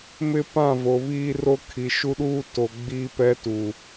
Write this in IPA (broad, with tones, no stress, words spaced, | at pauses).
mɪ˦ pã˦˨vo˨βiː˦ ro˦kʰi˨ ʃu˦ɗuː˦ to˨ ɡ͡biː˦pɛ˦tu˨